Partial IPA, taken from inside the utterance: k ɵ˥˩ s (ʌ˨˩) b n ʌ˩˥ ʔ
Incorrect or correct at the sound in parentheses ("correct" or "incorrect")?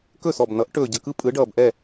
incorrect